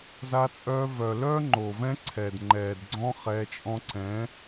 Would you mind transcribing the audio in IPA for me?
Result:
z a˦ t͡sʼ œː˦ v œ˨ l œ˦ ŋ͡ǃ o˨ v ɛ̃˦ ǀʰ ɛ˨ d ŋ͡ǃ ɛː˨ d ɡ͡ǀ ɔ̃˦ χ ɛː˧ t͡ʃʼ ɔ̃˦ ǀ ɛ̃˨˦

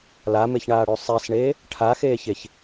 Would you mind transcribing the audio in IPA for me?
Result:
l a m e ç ɳ aː ɽ ʉ sˤ i s ɳ eː | ʈʰ a x eː ç e ç

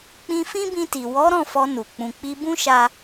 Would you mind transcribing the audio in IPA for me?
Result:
k͡p ĩ˧ f ĩ˦ b ĩ˧ t i˨ w ɔ˨˦ ɾ ɔ̃˦˨ f ɔ˧ n u˨ k͡p ũ˨ k͡p i˧ b ũ˦ ʃ a˦

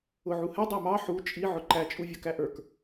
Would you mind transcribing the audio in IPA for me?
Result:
ʊ ʕ u h ɛ dˤ æ m ɑ ħ u t͡ʃʼ i ʕ ʊ ǃ æ t͡ʃʼ u vʲ ʌ k æ ʔ ə˞ k

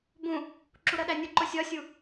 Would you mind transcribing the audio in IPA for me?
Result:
b ũ | ǁ u ɾ ɜ ɗ æ nʲ u ǃ ʊ sʲ ɒ sʲ u

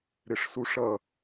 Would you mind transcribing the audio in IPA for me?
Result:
ɾ ɪ ʂ s u ʂ ʌ

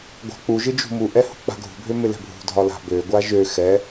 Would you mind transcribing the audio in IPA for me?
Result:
ɡʷ a̤ k͡p u ʒ ɯ d͡ʒ ṳ m u ʔ ɛ h ṳ k͡p a̤ ɡʱ ṳ bʱ ø m ɪ l ɛ̤ bʱ ṳ dʱ ɒ l a̤ b ø ɡʷ a ʒ ø x ɛ

